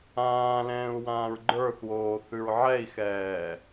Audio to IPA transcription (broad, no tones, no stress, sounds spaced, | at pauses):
ãː l ɛ̃ː u̯ w ãː ɹ ɡ͡ǃ ə˞ θ w oː θ ʉ ɹ ʕ ɛ i̯ x ɛː